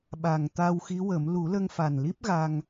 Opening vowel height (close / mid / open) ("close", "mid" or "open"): open